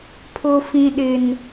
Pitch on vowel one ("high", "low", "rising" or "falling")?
high